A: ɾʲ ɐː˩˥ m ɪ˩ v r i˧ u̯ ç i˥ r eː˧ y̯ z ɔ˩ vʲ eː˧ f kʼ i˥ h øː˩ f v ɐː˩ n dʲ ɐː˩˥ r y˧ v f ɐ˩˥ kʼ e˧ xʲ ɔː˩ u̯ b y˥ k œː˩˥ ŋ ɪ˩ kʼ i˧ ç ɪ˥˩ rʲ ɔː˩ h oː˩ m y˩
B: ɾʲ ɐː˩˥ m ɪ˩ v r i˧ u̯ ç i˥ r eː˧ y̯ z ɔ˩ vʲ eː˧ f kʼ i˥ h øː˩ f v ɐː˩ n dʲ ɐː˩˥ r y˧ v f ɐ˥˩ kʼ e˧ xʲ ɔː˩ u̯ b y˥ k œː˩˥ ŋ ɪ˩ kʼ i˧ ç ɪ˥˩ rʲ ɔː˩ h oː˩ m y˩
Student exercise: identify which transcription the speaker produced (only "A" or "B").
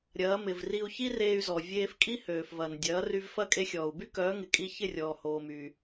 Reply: B